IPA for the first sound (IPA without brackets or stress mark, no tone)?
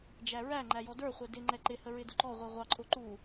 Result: d͡ʒ